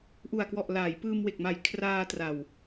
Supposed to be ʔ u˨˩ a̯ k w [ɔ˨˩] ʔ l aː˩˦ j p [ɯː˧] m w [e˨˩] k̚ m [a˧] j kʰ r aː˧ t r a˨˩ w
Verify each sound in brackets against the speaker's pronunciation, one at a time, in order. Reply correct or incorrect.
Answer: correct, correct, correct, incorrect: a˨˩

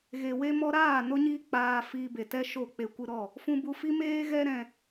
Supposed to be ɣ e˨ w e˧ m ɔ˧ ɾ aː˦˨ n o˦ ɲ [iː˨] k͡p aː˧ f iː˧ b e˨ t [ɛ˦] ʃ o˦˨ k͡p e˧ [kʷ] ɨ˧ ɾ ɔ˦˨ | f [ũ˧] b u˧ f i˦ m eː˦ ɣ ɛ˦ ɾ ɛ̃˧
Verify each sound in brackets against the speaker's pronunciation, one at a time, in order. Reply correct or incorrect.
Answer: incorrect: iː˦, correct, correct, correct

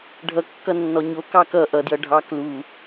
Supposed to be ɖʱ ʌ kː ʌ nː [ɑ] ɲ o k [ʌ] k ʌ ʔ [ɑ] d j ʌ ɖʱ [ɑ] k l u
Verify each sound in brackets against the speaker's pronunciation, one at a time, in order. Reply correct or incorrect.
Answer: incorrect: ɔ, incorrect: ɑ, incorrect: ʌ, correct

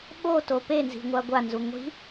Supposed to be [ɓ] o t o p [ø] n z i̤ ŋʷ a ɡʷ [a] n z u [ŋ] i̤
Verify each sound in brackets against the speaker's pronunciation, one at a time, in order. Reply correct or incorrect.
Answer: correct, incorrect: e, correct, incorrect: ŋʷ

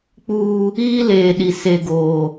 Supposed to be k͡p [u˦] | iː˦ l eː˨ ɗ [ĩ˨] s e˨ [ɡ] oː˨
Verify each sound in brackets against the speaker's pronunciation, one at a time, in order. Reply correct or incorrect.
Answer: incorrect: uː˦, incorrect: i˨, correct

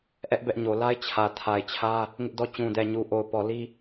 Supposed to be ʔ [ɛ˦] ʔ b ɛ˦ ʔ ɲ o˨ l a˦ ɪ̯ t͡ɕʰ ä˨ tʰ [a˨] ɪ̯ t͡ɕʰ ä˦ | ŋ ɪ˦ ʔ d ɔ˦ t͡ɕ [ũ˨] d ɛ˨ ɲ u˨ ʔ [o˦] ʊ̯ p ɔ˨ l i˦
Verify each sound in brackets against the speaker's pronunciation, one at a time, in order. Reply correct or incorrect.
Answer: correct, correct, correct, incorrect: o˨

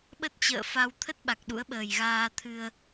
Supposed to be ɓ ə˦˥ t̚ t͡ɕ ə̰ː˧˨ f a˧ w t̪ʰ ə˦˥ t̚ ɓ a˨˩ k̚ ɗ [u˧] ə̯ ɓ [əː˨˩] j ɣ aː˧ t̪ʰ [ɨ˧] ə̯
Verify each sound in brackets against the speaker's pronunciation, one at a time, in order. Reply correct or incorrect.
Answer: incorrect: ṵ˧˥, correct, correct

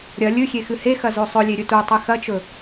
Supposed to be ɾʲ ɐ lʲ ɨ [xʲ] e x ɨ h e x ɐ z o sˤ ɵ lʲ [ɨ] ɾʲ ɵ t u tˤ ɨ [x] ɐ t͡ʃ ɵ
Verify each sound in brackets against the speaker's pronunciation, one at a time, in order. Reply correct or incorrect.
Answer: correct, incorrect: e, correct

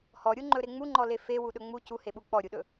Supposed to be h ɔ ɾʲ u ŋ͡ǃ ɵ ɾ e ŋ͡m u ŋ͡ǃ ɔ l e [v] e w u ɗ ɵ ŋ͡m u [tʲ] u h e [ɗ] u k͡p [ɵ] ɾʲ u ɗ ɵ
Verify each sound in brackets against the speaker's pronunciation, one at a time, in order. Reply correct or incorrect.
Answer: incorrect: f, incorrect: c, incorrect: ɓ, incorrect: ɔ

